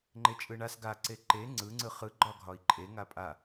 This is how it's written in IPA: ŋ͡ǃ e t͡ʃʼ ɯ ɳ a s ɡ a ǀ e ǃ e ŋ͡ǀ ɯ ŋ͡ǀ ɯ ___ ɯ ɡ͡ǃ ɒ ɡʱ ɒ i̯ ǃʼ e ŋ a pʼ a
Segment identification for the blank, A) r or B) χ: B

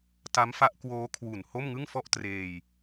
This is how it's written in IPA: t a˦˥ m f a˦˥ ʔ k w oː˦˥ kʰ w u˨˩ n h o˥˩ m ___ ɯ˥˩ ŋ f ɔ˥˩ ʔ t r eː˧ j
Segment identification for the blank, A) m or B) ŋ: B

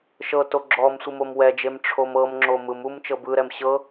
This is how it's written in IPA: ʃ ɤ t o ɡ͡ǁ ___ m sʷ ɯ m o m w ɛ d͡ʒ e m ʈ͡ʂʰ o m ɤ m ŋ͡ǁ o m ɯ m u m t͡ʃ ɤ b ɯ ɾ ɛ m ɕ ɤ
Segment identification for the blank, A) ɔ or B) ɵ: A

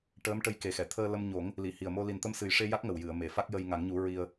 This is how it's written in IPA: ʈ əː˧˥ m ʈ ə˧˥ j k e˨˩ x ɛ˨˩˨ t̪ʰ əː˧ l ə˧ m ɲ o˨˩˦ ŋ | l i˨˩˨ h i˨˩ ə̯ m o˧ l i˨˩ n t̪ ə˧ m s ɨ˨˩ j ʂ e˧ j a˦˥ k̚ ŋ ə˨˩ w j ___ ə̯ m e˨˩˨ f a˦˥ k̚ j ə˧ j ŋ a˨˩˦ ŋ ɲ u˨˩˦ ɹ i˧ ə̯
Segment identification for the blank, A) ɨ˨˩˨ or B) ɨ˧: A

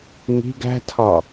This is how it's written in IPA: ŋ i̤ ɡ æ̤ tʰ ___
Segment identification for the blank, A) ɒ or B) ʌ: A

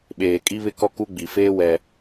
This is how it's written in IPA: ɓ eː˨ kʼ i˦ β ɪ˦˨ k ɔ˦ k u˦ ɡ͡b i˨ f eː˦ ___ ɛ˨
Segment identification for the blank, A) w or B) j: A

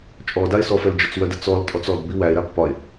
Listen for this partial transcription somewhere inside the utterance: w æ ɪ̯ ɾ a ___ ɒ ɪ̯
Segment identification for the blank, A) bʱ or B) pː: B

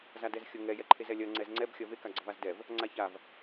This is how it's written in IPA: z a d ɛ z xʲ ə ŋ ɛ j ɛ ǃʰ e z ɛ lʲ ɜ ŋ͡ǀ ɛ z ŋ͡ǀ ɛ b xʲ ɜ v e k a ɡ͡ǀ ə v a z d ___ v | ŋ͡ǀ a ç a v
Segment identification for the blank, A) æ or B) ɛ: B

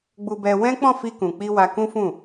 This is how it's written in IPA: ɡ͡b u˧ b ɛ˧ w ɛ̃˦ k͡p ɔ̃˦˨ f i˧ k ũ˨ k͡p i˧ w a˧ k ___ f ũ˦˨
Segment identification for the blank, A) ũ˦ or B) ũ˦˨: A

